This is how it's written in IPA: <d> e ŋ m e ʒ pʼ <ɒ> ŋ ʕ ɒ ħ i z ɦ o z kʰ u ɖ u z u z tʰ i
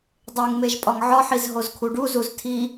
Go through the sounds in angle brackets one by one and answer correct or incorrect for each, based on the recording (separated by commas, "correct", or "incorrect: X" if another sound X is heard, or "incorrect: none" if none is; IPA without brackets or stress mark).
incorrect: dˤ, correct